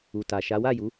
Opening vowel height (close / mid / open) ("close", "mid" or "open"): close